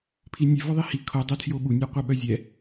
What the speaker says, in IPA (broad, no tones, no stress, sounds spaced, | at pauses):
pʰ i nʲ e v ɔ ðˤ i h i kʰ o dˤ o tʰ j o ɓ u nʲ œ qʷ ɛ ɓ œ zʲ ɛ